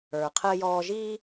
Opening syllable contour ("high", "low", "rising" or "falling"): low